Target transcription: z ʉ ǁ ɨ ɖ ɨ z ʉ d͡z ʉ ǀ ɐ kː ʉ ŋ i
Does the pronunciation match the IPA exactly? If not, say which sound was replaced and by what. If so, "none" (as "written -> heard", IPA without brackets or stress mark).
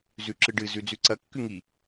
none